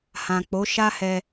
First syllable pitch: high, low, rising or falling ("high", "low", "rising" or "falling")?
low